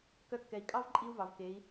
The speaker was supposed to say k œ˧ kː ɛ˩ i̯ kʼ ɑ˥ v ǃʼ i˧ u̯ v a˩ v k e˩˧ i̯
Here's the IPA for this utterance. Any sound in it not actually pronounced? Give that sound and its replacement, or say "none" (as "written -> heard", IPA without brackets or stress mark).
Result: a˩ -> ɑ˩